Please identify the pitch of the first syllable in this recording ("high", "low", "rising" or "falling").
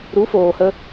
rising